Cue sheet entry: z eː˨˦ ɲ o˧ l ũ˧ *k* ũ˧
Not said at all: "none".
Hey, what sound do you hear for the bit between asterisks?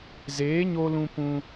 p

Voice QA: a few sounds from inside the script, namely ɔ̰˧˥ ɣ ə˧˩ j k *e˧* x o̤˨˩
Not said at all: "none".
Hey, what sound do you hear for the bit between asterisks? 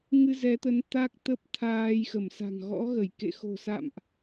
ḛ˧˨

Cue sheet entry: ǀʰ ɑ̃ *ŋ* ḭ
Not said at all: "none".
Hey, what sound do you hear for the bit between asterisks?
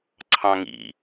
ŋ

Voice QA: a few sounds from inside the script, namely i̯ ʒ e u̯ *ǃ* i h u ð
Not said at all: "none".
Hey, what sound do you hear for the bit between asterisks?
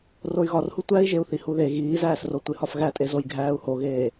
θ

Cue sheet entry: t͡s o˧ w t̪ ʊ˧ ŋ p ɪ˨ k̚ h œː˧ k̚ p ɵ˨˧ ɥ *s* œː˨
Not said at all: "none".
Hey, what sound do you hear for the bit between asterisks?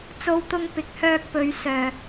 s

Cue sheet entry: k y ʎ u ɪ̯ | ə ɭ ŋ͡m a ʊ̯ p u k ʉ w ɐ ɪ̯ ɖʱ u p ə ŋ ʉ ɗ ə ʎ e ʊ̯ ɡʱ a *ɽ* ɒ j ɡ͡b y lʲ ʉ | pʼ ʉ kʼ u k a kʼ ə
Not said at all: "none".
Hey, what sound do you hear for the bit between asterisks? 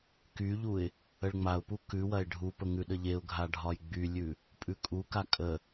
ɖʱ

